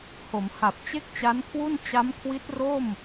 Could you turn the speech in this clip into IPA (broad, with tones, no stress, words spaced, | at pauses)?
ho˩˦m ha˨˩p̚ t͡ɕe˥˩k̚t͡ɕa˦˥nkʰwu˥˩n t͡ɕa˦˥mkʰwi˦˥t̚ro˥˩m